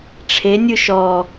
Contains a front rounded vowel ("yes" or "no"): no